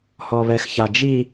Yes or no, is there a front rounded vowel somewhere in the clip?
no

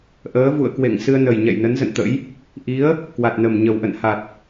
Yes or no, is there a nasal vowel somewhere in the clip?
no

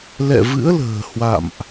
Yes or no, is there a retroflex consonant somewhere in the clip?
no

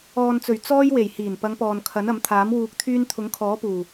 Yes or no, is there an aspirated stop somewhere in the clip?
yes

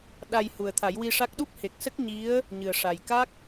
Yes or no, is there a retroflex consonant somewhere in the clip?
yes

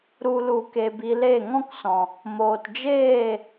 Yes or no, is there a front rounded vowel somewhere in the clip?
no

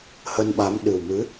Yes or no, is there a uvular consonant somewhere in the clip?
no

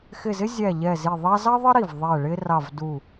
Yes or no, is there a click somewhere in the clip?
no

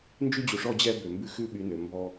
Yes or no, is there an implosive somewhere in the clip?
yes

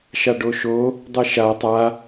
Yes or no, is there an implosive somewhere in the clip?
no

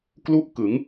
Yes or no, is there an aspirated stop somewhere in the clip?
no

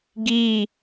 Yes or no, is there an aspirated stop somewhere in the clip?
no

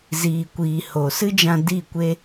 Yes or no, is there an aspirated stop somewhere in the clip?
no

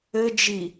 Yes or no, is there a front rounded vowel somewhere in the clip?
no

